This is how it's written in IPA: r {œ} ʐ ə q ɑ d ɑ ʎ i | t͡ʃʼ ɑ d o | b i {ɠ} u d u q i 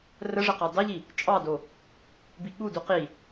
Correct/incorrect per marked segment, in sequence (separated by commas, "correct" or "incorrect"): incorrect, correct